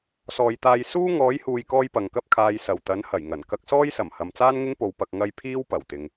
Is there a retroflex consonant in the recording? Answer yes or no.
no